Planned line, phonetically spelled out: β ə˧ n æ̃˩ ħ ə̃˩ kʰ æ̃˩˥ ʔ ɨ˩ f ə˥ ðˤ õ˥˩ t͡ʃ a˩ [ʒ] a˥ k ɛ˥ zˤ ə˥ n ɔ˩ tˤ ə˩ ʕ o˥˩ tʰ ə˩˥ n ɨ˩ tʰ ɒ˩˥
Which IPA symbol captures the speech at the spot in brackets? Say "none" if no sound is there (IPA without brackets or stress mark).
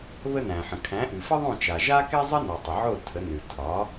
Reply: ʒ